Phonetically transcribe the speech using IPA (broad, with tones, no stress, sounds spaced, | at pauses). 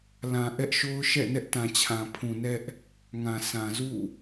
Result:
l ã˨ ʔ ɛ˦ ʔ ʃ o˦ ʊ̯ ʃ ɛ̰˦˨ n ɛ˦ ʔ t ã˨ t͡ɕʰ ã˨ pʰ ũ˨ n ɛ˦ ʔ | ŋ ã˨ s ã˨ z ṵ˦˨